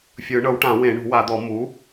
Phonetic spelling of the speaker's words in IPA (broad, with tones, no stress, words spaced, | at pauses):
fʲɯ˨˩˦ɳɤ˩˥wʈã˨˩˦ wẽ˨˩˦ɳṳ˨˩˦wa˨˩˦d̪ɔ˨˩˦ mu˩˥